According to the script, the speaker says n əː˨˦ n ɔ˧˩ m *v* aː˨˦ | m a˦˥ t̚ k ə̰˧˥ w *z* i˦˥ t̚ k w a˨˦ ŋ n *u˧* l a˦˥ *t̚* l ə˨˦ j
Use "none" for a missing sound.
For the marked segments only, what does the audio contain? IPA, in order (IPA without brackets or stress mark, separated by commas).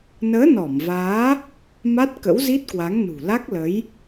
v, z, ṳ˨˩, k̚